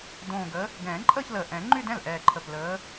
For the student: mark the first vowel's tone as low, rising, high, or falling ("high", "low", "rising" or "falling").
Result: low